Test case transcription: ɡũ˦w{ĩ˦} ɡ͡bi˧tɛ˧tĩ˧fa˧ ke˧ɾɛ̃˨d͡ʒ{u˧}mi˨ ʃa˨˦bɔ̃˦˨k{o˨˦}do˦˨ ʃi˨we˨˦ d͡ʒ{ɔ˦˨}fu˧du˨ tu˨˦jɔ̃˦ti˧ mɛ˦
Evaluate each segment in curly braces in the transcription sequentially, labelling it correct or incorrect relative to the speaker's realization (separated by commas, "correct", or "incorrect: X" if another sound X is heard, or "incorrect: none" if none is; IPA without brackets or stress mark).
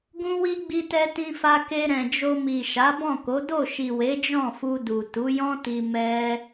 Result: incorrect: i˦, incorrect: o˧, correct, incorrect: ɔ̃˦˨